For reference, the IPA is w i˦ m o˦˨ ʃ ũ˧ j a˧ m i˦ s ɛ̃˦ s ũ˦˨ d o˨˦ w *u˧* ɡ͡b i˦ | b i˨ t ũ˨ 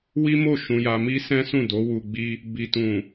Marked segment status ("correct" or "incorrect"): correct